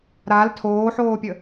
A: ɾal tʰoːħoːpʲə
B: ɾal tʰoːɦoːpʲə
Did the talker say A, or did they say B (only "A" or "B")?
A